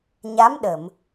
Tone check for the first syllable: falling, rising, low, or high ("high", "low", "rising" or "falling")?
rising